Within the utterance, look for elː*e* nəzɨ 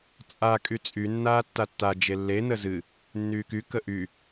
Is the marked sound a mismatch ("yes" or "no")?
no